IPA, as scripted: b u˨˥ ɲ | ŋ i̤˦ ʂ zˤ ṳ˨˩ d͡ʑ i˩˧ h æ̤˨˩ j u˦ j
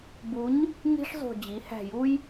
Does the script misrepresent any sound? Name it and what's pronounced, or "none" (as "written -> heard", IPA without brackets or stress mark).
none